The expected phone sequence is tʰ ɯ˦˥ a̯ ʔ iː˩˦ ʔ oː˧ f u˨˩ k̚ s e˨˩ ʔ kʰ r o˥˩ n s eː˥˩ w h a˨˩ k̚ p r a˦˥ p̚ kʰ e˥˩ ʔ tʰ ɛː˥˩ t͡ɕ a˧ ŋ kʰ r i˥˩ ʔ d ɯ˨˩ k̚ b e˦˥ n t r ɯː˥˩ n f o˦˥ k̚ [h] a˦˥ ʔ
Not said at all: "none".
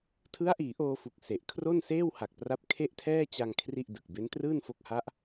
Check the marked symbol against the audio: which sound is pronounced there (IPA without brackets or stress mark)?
h